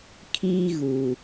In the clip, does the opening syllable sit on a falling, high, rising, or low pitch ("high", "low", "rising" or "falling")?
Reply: high